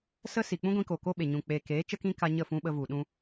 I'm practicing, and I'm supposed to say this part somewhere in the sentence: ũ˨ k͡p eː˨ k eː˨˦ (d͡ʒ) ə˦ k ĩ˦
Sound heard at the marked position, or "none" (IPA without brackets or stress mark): t͡ʃ